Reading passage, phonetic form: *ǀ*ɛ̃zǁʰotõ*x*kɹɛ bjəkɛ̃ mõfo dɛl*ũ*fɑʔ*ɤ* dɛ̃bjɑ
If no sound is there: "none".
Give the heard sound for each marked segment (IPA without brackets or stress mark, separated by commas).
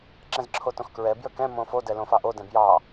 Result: ǁ, x, õ, o